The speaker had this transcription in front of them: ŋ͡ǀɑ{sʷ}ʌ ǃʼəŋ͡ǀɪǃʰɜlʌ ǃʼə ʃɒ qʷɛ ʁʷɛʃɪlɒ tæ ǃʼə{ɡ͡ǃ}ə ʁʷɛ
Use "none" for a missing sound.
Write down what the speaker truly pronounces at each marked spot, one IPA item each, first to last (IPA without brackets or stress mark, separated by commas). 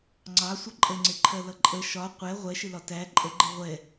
sʷ, ɡ͡ǃ